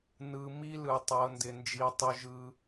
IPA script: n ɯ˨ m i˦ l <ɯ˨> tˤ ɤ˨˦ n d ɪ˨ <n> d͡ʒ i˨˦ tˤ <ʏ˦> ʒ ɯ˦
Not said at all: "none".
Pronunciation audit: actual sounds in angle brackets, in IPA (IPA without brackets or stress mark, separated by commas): ɯ˨, n, ʏ˦